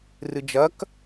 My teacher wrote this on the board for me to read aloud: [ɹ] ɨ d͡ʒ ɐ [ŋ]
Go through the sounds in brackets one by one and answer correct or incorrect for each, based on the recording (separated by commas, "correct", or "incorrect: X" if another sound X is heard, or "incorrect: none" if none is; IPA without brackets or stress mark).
incorrect: r, incorrect: k